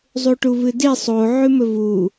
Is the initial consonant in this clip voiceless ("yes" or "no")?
no